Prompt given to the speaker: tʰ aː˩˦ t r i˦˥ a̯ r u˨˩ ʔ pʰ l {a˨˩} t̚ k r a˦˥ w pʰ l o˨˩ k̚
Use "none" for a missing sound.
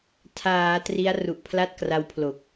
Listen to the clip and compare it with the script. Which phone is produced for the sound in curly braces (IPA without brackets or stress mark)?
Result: a˥˩